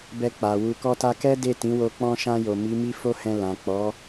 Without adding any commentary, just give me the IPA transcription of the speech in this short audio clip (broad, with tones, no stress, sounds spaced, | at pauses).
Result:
b ɛ˧ k͡p a˨ w u˨ k ɔ˧ t a˧ k ɛ˦ d e˦˨ t ĩ˨˦ w o˧ k͡p ɔ̃˧ ʃ ã˧ j o˨ m i˨˦ m i˦ f o˦ h ɛ̃˧ l ã˨ k͡p ɔ˨˦